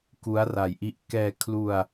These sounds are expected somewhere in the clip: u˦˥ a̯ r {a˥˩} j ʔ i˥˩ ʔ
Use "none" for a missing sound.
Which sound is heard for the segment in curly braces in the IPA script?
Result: a˨˩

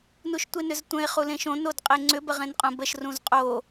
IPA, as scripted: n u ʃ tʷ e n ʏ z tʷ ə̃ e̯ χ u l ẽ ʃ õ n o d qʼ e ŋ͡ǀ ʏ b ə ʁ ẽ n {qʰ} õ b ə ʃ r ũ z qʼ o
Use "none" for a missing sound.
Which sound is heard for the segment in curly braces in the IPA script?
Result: qʼ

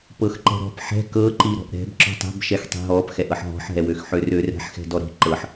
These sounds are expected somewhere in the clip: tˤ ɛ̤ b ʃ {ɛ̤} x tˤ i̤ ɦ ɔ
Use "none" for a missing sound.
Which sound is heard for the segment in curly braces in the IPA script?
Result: ɛ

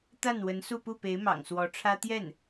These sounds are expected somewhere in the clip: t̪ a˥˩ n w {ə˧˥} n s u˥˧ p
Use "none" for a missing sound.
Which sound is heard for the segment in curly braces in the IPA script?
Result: ə˧˥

